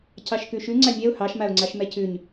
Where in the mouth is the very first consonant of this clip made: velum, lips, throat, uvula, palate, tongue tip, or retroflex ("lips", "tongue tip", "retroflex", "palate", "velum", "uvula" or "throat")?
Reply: palate